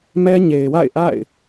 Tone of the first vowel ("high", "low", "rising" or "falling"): high